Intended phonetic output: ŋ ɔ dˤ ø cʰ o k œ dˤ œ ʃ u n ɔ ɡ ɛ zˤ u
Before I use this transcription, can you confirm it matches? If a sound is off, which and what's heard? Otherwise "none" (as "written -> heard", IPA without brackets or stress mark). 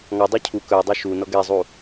o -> u